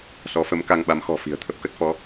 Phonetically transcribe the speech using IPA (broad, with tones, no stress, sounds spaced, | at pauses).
s ɔ˨˦ f ə˨˦ m k a˧ ŋ ɓ a˨˦ m x ɔ̤˨˩ f i̤˨˩ ə̯ t̪ʰ ə˦˥ p̚ k ə˦˥ t̚ f ɔ˨˦